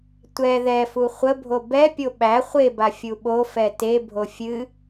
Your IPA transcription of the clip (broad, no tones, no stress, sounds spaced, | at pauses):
tʷ ɛ ð ɛ f u χʷ ə bʱ o b ɛ pʲ o ɓ æ χʷ e b a fʲ u ɓ o f ɛ t e bʱ o fʲ ɨ